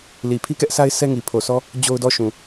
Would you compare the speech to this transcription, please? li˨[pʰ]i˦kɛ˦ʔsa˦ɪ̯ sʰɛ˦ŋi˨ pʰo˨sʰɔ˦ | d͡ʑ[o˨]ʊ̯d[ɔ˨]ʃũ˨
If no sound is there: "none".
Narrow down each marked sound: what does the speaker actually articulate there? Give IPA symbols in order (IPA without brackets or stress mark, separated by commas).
pʰ, o˦, ɔ˦˨